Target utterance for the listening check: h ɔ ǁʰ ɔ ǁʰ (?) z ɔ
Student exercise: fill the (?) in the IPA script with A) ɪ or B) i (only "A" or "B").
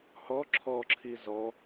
B